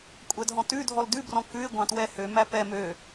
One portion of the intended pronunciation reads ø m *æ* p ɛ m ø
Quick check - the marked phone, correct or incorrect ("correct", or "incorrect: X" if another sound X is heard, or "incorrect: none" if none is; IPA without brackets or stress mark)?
correct